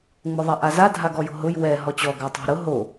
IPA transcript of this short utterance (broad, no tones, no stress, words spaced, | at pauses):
ŋ͡mʊðˤaʔaza dʱaɡɔjo̤ɦʊj wɛ ɦɔt͡ɕɔ ɡatˤa̤ɾʊ ɦo